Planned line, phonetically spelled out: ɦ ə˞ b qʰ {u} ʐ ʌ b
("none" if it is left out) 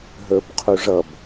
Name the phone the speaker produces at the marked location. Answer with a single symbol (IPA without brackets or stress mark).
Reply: u